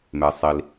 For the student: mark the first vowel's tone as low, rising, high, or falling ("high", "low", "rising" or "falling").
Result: low